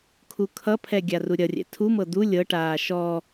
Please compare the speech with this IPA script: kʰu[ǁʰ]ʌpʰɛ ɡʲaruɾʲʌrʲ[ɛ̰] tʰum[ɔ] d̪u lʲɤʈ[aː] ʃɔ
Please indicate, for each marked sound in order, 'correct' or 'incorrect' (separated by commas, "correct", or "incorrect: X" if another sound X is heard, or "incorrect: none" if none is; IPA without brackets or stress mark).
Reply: incorrect: kʰ, correct, incorrect: ɤ, correct